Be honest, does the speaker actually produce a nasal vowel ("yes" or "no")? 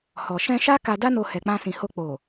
yes